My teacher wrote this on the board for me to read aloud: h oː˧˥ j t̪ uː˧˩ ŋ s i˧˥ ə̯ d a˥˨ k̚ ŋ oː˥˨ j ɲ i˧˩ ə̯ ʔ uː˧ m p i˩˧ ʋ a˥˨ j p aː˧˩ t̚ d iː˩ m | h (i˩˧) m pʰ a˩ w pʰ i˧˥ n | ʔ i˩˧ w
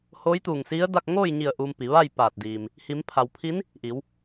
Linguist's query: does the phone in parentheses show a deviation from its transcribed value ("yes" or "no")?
no